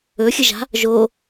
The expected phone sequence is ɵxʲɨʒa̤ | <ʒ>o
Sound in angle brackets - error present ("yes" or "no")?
no